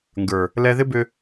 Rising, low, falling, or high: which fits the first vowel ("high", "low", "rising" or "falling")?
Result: low